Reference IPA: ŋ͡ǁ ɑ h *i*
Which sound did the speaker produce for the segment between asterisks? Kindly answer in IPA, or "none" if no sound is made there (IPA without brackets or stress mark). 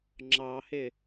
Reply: ɪ